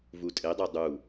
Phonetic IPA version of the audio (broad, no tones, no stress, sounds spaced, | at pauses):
v u tʼ e dˤ o dˤ u